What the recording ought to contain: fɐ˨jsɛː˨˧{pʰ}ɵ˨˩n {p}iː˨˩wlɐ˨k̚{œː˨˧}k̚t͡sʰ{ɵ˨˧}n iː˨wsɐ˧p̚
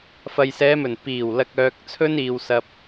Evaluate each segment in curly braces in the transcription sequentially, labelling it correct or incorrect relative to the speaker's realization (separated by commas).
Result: incorrect, correct, incorrect, incorrect